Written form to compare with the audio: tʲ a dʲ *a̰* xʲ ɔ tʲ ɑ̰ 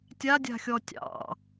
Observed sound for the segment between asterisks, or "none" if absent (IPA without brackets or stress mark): a̤